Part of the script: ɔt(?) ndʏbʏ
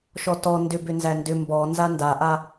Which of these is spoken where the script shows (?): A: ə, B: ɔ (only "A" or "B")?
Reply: B